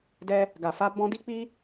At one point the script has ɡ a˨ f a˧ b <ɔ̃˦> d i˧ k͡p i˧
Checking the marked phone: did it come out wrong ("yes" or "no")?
yes